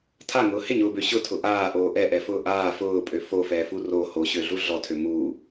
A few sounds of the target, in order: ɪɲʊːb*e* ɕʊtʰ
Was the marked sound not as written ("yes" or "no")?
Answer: yes